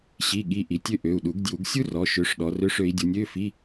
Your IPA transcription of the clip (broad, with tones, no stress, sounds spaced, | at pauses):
ɕ i˧˥˧ ɠ i˧˥˧ ʔ i˨˦ tʲ ø˥ ʔ ø˩˧˩ u̯ ɗ u˨˩˦ ɡ d j u˨˩˦ ɡ sʲ u˥ r ɔ˩˧˩ ʃ ø˨˦ ʂ ɗ ɔ˨˦ r ø˧˥˧ ʂ ø˨˦ i̯ dʲ u˨˦ nʲ ø˧˥˧ f i˧˥˧